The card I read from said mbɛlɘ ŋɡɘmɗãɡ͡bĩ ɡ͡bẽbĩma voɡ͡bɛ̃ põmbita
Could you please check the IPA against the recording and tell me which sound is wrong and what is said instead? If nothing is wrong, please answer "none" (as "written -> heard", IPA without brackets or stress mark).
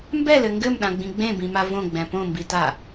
o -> õ